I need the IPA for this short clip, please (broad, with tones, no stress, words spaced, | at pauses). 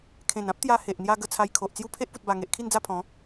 kʰẽ˨˩nã˦p̚ t̪ja˧he˨ʔn̪ja˧ɡə˧ t͡sʰa˧jkʰo˨ʔt͡sju˥˧ pʰe˦ʔpu˨t̚ba˨˩ ŋe˨ʔkʰi˥˧n d͡za˥˧pʰɔ̃˨˦